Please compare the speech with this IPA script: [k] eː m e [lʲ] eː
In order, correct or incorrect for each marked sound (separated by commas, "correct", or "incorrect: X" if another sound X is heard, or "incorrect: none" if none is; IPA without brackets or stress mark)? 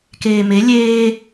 correct, correct